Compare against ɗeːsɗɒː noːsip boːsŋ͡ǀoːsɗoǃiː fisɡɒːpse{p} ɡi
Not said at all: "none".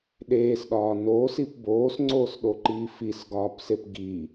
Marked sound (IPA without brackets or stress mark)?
p